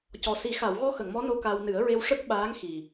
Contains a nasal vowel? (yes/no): no